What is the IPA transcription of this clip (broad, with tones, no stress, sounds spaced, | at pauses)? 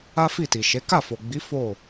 a˦ f i˦˨ t i˨ ʃ e˨˦ k a˦˨ f o˨ ɡ͡b i˨˦ f o˦˨